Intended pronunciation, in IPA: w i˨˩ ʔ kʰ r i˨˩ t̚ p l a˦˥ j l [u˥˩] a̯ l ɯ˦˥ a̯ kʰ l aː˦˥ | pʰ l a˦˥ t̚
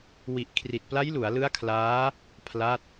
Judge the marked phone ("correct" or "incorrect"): incorrect